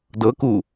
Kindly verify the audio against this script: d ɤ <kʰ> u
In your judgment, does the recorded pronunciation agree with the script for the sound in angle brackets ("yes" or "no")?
no